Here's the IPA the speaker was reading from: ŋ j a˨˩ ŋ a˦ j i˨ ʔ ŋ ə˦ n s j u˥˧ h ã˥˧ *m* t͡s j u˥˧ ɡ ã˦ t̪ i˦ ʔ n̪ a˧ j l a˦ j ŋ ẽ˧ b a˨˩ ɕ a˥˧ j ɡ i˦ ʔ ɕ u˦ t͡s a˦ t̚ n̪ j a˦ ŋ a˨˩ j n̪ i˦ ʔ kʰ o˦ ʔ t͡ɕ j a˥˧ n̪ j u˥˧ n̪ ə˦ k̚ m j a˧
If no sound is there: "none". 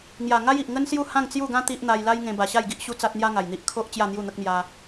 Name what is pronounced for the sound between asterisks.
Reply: ŋ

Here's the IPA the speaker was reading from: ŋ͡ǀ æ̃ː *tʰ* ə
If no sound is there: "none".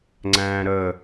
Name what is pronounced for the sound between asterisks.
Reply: ɾ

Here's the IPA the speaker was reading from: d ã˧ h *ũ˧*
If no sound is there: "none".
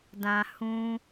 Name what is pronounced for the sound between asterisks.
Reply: ũ˧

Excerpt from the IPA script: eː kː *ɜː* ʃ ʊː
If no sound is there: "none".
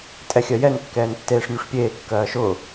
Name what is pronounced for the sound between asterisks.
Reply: ɜː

